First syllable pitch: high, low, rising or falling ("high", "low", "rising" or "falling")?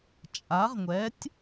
rising